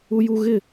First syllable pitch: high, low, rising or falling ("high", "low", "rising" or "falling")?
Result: high